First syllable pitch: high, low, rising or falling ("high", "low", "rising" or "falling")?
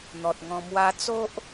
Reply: low